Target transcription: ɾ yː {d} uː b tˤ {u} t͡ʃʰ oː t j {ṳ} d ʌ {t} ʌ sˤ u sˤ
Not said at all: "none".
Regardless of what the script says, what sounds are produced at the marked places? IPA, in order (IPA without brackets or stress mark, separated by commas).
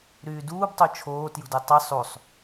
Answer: d, o, ṳ, tˤ